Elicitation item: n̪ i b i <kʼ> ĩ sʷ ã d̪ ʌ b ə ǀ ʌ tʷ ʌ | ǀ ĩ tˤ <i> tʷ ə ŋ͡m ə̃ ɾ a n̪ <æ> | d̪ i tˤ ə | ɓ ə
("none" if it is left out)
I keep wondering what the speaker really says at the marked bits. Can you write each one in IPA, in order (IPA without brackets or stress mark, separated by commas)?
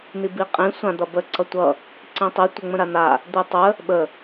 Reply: qʼ, i, a